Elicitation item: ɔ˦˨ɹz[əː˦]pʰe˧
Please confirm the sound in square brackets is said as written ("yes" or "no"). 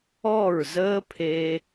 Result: yes